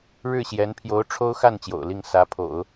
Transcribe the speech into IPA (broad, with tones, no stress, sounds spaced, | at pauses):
ɻ ɻ̩˥˩ ɕ j ɛ˧˥ n pʰ j o˧˥ ʊ̯ ʈ͡ʂʰ o˥ ʊ̯ x a˥˩ n t͡ɕ j o̰˨˩ ʊ̯ l i˥˩ ŋ s ä˧˥ pʰ o̰˨˩˦ ʊ̯